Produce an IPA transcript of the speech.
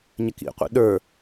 ɲ ɪ k ḭ qʷ ḭ ɗ ə˞

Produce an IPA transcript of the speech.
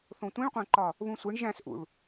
θ õ tʷ ĩ ɭ qʷ æ̃ ǃ ɒ | β ũ sʷ e ɳ ʒ æ̃ s ʔ ṵ ɭ

